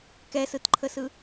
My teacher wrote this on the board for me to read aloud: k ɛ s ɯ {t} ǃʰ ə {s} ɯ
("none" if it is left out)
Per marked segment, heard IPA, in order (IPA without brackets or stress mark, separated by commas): t, s